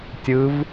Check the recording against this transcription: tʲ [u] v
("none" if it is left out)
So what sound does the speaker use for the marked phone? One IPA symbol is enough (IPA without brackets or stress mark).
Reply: ɯ